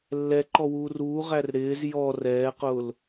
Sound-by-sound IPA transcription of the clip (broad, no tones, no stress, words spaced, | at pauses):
lːɛǃɔwuːr uːʁær ɾɪːz jɔ rɛːqʊːl